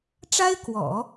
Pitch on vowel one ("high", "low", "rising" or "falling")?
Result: high